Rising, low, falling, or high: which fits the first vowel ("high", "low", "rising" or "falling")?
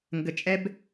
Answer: low